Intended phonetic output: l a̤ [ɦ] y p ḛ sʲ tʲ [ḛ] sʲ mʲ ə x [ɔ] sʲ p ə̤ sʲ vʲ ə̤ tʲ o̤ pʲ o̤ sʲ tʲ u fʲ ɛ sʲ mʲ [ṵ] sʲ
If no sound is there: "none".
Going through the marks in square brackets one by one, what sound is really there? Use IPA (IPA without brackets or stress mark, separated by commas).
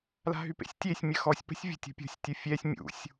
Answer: ɦ, e, ɔ, ṵ